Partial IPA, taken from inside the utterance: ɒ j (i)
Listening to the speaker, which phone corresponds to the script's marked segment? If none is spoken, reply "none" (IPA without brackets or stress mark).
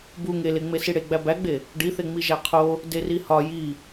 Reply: i